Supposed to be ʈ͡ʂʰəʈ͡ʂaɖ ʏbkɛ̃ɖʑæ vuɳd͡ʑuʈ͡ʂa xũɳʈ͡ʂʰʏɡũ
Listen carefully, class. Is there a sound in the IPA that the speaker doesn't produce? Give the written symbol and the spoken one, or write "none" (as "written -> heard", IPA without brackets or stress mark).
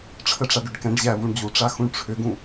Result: b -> ɖ